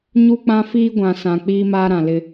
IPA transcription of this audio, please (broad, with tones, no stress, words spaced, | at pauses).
ɲu˦k͡pã˦fiː˦ ɡʷã˨sã˨ k͡piː˦maː˦ɾã˨lɪ˦